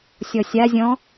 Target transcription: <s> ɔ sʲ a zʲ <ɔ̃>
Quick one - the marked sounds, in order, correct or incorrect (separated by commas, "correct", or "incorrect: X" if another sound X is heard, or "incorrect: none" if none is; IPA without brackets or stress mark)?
incorrect: sʲ, correct